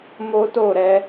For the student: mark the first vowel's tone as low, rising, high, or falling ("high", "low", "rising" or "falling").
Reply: high